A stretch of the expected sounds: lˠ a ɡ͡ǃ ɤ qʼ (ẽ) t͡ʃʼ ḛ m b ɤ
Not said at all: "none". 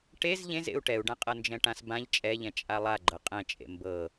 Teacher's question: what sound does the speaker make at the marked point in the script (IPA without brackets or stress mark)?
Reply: ɛ̃